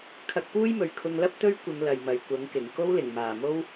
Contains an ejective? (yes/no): no